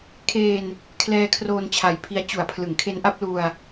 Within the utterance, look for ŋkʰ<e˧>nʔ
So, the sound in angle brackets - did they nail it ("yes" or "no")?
no